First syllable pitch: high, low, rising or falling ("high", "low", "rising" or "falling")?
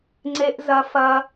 high